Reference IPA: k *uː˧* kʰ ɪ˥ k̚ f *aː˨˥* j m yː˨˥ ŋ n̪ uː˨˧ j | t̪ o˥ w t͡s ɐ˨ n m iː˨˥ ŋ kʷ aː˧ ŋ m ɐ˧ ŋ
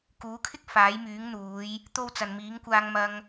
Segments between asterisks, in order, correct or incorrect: incorrect, correct

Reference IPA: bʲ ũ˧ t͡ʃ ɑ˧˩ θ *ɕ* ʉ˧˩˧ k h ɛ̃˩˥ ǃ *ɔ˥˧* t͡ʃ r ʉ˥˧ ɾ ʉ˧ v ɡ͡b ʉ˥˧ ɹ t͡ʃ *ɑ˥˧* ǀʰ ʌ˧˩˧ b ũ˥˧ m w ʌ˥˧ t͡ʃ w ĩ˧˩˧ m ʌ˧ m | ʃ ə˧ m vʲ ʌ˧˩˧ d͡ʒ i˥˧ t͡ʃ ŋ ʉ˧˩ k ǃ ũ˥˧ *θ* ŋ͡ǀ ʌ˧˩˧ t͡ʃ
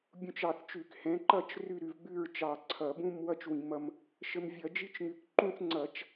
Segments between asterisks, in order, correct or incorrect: incorrect, incorrect, incorrect, correct

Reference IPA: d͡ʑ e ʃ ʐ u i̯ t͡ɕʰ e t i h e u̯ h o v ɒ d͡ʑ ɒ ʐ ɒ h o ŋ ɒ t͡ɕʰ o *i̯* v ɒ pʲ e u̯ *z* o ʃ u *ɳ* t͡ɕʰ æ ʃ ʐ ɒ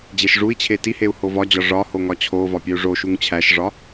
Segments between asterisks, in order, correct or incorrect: incorrect, incorrect, incorrect

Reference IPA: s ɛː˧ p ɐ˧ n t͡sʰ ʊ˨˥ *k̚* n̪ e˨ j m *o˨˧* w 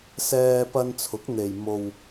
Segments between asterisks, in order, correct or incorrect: correct, incorrect

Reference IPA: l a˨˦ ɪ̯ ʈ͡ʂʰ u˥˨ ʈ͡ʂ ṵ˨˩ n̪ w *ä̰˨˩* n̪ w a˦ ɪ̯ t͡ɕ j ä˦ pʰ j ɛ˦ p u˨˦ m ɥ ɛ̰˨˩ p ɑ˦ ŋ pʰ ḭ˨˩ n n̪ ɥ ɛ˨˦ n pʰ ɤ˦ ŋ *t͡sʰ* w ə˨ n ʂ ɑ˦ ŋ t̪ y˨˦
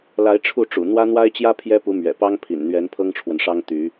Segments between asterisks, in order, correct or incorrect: incorrect, incorrect

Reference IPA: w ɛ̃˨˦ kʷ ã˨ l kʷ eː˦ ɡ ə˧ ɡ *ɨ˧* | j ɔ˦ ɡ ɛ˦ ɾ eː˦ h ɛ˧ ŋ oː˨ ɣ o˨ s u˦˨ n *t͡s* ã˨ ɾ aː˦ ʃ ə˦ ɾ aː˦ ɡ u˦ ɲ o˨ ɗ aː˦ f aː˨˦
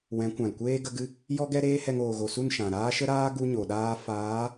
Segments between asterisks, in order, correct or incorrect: correct, incorrect

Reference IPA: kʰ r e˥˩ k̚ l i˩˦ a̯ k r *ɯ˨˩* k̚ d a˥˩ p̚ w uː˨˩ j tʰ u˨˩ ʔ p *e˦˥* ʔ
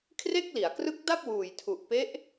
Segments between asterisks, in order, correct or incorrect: incorrect, correct

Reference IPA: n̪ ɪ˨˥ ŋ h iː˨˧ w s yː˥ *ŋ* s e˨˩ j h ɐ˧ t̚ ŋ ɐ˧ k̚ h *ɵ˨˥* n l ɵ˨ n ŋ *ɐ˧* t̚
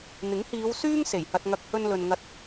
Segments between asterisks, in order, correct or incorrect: correct, incorrect, correct

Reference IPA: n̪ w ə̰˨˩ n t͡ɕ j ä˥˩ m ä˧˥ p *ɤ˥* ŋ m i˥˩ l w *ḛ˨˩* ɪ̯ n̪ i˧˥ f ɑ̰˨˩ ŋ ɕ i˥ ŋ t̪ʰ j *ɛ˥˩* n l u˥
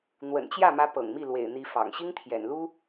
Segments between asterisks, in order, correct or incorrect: incorrect, correct, incorrect

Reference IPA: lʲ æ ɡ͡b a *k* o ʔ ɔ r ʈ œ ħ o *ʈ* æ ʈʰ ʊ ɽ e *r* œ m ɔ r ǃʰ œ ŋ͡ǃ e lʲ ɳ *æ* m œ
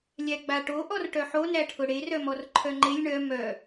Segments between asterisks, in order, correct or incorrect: incorrect, incorrect, correct, incorrect

